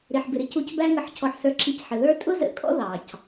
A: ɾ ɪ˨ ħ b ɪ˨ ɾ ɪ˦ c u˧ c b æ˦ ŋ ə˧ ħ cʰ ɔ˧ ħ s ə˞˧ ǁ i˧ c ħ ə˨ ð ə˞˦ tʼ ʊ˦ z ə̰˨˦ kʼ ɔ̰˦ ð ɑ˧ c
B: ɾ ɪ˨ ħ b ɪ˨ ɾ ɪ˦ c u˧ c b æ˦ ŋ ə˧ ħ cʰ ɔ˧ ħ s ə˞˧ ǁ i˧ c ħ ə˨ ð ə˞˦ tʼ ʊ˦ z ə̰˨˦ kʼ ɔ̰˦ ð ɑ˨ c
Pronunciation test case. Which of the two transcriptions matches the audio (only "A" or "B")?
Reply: B